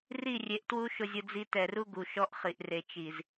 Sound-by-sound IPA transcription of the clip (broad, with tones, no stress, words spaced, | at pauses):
ri˦˨rʲe˨ʔtwu˦ ʃʊ˦zʲʊ˦d͡zi˦ tɛ˨ru˦ɡu˨ ʃɔ˦ʔχi˨ʔre˨ t͡ʃi˨z